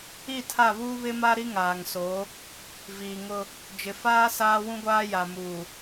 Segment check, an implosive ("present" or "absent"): absent